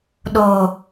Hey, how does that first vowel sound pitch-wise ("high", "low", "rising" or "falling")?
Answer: low